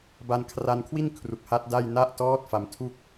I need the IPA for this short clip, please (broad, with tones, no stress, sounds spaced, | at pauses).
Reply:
b a˧ n kʰ r a˧ n kʰ w i˥˩ n kʰ r u˨˩ k̚ h a˦˥ t̚ d a˥˩ j n a˦˥ ʔ t ɔː˦˥ t̚ f a˧ m tʰ u˥˩ k̚